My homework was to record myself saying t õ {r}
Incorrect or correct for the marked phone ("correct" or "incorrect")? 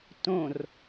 correct